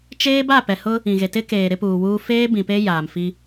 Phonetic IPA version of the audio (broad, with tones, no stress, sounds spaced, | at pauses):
t͡ʃ eː˦ b a˦˨ p ɛ˨ h ʊ˦ | ĩ˨ ɣ e˨ t ɪ˦ k eː˨ ɾ ɪ˦ p uː˨ w uː˦ f eː˦ b ĩ˨ p e˦ j aː˨ m f i˦